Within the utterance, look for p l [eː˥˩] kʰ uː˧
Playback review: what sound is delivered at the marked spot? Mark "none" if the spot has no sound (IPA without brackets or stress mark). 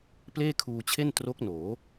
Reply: eː˥˩